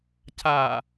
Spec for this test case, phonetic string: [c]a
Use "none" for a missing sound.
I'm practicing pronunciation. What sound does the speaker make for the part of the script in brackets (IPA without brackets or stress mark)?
c